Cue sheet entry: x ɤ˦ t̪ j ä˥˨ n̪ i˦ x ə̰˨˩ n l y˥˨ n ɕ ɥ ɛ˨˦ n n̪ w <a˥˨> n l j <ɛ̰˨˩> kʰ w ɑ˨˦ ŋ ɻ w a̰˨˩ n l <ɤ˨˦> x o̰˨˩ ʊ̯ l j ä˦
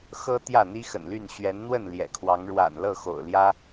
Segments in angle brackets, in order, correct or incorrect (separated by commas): incorrect, correct, incorrect